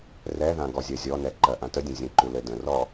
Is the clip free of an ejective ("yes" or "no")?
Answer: yes